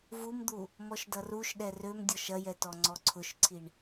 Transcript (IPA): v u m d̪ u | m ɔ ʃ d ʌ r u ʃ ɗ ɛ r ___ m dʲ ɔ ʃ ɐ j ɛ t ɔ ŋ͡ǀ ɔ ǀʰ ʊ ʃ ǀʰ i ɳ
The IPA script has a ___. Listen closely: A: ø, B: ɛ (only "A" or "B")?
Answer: A